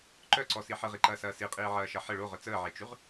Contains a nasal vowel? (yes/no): no